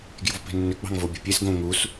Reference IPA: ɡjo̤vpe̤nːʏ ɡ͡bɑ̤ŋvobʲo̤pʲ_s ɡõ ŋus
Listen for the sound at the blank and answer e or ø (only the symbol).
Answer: e